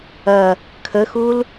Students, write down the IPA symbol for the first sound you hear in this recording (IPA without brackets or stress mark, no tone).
ɐ